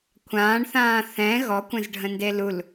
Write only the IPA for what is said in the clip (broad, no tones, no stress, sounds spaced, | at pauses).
kʷʰ ãː ɳ θ ãː θ ɛ̃ ɣ ɔ kʷ ə̃ z ɖʱ ə̃ n d e l u l